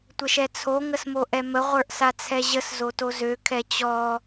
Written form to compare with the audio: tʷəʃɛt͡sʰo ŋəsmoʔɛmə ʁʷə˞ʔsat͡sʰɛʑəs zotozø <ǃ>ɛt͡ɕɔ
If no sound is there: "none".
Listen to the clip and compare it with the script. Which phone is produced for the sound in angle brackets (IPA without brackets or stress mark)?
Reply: kʰ